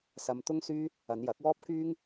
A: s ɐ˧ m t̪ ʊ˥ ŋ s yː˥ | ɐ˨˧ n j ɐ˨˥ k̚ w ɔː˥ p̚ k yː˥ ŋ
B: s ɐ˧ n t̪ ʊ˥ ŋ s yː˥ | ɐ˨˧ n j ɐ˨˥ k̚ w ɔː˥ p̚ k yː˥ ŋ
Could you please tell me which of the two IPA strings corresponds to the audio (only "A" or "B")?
A